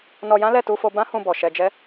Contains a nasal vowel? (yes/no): yes